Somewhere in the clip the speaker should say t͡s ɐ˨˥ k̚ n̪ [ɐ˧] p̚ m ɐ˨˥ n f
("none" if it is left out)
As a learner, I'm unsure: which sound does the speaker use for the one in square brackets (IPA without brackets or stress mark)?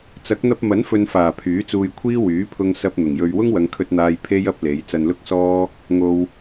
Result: ɐ˧